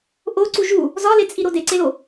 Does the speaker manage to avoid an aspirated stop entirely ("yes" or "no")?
yes